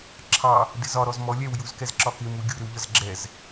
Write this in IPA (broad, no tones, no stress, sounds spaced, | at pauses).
ǁʰ ɑ | d ɪ z ɒ ɾ ɔ z m ɔ lʲ ɛ w j u z k ɛ z ǁ ɒ k ɪ m u ɡʲ u ɾ ɪ w ʎ ʌ z ɡ͡ǁ ɛ z